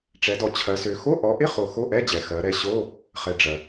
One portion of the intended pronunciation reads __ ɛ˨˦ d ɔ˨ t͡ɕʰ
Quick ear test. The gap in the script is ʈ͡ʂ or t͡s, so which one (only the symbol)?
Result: ʈ͡ʂ